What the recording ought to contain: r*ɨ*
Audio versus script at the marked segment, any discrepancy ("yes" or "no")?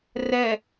yes